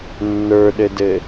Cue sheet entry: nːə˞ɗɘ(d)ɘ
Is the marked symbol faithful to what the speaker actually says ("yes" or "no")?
yes